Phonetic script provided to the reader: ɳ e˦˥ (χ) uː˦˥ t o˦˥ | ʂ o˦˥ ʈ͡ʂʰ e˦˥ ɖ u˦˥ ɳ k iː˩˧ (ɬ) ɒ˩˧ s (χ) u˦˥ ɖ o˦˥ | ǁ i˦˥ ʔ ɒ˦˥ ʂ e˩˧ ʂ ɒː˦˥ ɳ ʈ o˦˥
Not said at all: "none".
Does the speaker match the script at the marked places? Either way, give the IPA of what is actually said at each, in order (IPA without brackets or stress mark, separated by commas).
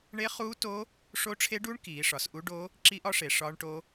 χ, ʂ, ʔ